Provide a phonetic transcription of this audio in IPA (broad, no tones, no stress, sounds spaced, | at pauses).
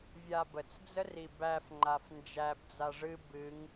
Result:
vʲ a b ə t͡s d͡z ə r i b æ f ŋ͡ǃ a f n d͡ʒ æ b d͡z a ʐ ɨ b ɨ ŋ